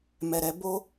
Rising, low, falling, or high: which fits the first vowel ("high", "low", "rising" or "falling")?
low